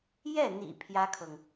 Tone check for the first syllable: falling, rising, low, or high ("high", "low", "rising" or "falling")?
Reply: falling